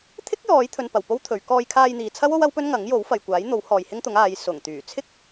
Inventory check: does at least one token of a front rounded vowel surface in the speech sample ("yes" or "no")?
yes